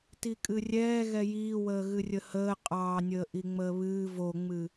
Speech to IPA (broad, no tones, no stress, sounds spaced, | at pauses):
t i kʼ ɨ rʲ ɛː ɣ ɛ j iː w əː ɣ ɨ rʲ ə h əː qʼ ɑː nʲ əː ʔ i ŋ͡m əː β ɨː v o ŋ͡m ɨ